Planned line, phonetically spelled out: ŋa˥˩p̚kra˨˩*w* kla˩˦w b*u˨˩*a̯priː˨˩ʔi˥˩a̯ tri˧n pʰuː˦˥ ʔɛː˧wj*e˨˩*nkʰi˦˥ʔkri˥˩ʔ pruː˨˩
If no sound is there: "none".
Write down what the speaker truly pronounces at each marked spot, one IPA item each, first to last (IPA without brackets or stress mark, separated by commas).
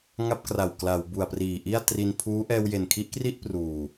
w, u˨˩, e˨˩